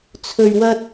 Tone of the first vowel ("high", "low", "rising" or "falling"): low